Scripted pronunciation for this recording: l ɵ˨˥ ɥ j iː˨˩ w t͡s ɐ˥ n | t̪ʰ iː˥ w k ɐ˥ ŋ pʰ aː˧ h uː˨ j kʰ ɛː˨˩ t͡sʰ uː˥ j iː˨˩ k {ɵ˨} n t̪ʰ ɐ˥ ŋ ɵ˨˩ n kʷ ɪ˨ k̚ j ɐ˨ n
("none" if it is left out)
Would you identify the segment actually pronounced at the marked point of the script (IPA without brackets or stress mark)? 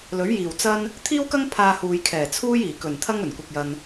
ɵ˨˩